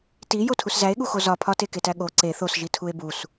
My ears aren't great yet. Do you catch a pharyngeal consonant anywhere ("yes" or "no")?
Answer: no